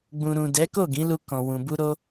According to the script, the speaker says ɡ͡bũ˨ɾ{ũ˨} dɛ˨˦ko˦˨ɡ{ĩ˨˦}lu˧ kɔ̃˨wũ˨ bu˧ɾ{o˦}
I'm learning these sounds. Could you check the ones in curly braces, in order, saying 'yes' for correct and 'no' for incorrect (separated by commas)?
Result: yes, yes, no